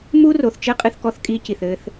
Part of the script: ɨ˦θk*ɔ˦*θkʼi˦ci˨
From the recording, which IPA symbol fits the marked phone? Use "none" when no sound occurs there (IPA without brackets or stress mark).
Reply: ɔ˦